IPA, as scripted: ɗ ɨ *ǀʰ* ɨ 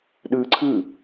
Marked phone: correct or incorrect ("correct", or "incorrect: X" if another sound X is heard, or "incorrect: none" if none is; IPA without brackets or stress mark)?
correct